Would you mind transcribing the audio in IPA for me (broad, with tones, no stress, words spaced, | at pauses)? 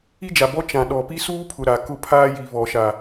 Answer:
i˦d͡ʒa˨bɔ˦ t͡ʃã˨ɗɔ˨ pi˦suː˦pʰʊ˨ ɾa˨kʊ˦ pʰaː˦ji˨ βɔ˨ʃa˨